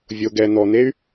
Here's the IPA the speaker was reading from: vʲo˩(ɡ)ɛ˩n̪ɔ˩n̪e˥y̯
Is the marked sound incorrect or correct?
correct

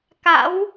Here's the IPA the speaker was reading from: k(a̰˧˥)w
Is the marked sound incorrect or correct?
correct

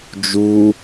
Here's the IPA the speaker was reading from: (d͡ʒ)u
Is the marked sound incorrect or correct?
correct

